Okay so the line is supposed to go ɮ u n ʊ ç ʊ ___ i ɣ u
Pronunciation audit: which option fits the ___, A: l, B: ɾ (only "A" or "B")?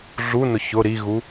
B